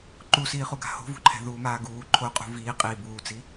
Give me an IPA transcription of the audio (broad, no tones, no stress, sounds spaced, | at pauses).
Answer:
ǃ u s iː χ u ɡ a̤ h o̤ v ṳ ǃʰ ɛ̤ ð uː m aː ɡ uː ǃʰ o qʼ ṳ v iː qʼ iː b uː t͡s i